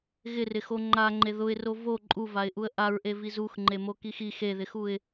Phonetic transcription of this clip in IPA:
ɣɪrɪxo ŋ͡ǃaŋ͡ǃe ðʊɪ̯ro vo ǃʼuvaɪ̯ʔuə̯ ʔaɹʔeviz uxŋ͡ǃemokix i xeðɪxuɪ̯

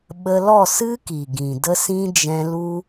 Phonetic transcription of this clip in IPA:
ɓə˧lɔ˦˨sɨ˦ ki˨ɡĩ˨də˦sĩ˦ d͡ʒɛ̃˦ lu˦

